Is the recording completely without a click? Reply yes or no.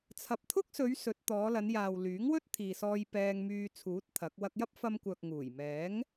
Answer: yes